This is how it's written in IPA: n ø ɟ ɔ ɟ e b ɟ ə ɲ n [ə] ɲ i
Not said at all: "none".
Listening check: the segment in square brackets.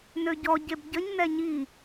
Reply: ɛ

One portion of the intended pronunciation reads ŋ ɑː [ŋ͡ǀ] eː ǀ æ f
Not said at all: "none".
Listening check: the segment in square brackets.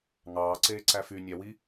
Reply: ǀ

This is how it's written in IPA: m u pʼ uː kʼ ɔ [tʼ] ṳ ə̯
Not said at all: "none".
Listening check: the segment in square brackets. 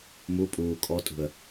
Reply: tʼ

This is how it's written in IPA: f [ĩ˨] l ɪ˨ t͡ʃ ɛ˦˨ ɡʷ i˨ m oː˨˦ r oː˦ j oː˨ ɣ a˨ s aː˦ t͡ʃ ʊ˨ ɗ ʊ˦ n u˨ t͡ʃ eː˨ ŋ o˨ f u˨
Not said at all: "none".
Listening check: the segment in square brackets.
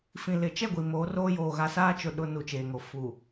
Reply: ĩ˨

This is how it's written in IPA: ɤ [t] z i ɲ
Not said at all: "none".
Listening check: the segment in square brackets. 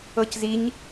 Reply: c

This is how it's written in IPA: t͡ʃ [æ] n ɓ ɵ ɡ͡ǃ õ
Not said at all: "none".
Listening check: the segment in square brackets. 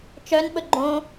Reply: œ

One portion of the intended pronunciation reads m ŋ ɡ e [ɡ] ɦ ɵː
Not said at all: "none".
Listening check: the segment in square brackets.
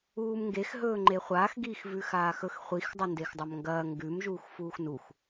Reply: x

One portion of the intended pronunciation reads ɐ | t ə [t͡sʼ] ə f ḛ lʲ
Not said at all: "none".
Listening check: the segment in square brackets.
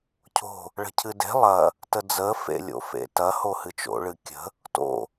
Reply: d͡z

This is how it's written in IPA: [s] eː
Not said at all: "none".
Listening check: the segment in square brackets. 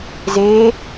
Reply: z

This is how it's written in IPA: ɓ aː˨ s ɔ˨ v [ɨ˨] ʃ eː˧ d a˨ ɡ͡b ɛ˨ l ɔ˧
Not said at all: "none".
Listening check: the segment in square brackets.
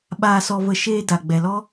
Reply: ə˨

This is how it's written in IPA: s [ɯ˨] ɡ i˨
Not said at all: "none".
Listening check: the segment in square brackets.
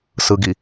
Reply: ɯ˨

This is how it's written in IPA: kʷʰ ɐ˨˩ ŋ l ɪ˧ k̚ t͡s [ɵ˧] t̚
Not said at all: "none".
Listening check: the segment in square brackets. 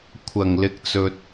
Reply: ɵ˧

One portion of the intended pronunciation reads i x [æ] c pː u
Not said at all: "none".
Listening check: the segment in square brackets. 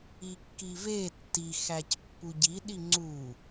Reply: æ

